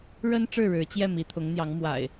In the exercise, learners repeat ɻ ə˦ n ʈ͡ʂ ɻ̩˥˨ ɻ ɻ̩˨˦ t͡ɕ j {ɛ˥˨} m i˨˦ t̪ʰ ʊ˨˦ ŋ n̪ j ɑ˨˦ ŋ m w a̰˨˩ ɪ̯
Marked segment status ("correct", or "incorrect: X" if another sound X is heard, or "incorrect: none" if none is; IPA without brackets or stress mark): correct